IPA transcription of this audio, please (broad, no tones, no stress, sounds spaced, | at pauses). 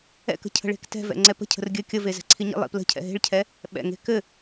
ɛ̰ k ə̤ cʰ ə̤ ɭ e̤ k t ɛ̤ v ɛ̰ ŋ͡ǀ ɛ p ə̤ cʰ ə̤ r ɡʲ ɘ kʲ ə v e z ɛ̤ ǀʰ i ɲ ḭ lˠ ḭ p l ə̤ cʰ ɛ̰ ɦ e̤ ɭ cʰ ɛ | ɓ ɛ̰ ŋ e̤ k ɘ